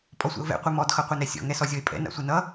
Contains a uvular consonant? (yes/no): yes